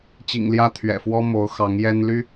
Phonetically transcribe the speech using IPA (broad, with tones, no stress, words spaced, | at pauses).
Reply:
t͡ɕḭ˨˩ŋljä˦ t̪ʰɥɛ̰˨˩ fwɔ˦ mo˨˦ʊ̯ xɑ˨˦ŋjɛ˦nly˦